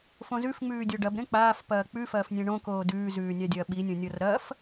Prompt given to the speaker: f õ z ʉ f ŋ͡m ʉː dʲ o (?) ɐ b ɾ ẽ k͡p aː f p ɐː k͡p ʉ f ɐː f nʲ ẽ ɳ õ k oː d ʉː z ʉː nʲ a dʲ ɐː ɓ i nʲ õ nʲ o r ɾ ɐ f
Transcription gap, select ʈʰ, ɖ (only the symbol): ɖ